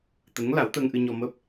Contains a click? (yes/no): no